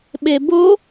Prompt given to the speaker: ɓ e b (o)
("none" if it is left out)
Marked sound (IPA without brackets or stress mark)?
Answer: o